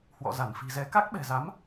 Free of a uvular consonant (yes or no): yes